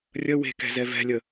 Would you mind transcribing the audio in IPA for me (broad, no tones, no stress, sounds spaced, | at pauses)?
rʲ ə w e̤ k ɛ̤ z ɛ v ɛ̤ lʲ ə